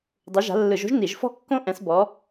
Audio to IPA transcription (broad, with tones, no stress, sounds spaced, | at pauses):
dˤ u˨˦ ʒ a̤˨˦ lː ɯ˧˩˧ ʒ o̤˥ ʒ n i˧˩˧ ʒ f ɔ̤˥ kː õ˥ ʔ ɛ̃˨˦ s b ɔ˨˦